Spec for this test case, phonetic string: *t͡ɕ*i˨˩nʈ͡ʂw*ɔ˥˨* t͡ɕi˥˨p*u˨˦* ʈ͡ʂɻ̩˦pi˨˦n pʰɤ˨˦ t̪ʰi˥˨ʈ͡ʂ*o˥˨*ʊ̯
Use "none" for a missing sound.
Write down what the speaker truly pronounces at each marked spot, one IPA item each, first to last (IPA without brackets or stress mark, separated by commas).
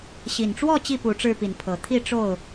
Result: ɕ, ɔ˥˨, u˨˦, o˥˨